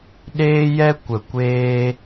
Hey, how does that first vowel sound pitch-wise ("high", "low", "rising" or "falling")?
high